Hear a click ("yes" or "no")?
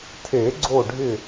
yes